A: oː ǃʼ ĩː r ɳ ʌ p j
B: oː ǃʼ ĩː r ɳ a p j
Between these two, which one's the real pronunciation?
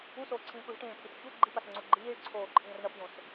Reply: A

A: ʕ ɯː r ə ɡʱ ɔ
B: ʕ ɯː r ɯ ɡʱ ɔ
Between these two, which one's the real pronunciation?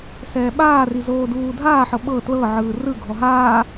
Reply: B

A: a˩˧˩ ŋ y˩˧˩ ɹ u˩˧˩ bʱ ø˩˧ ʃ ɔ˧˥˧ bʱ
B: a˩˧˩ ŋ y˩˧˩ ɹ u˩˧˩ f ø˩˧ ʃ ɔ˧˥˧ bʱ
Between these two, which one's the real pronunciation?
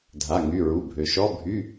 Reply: A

